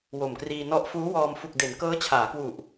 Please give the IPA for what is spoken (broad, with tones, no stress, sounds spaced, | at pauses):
w o˨˩ m k r iː˧ n ɔ˦˥ ʔ f uː˦˥ w ɔː˧ m f u˨˩ k̚ d e˩˦ n k ɤː˦˥ t͡ɕʰ aː˩˦ k w u˨˩ ʔ